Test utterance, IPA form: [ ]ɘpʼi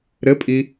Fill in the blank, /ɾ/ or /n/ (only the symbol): ɾ